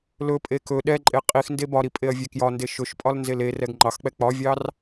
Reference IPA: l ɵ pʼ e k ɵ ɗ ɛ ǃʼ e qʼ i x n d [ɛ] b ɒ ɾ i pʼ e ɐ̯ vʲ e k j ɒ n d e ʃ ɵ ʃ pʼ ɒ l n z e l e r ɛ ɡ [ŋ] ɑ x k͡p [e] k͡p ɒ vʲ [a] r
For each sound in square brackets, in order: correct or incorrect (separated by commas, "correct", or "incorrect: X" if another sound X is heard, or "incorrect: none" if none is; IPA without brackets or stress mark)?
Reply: incorrect: e, incorrect: ŋ͡ǃ, incorrect: ɛ, incorrect: ɑ